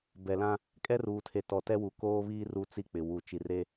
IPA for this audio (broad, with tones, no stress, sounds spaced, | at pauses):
b ɛ˨ l ã˦ | kʼ ɛ˦ r uː˨ tʰ e˨ t ɔ˨ t ɛ˦ w u˨ k oː˦ β iː˦ r u˦ t͡s i˦ k͡p ɪ˨ w u˨ t͡ʃ i˨ r e˦